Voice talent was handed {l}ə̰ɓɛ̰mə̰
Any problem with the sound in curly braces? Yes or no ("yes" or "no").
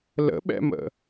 no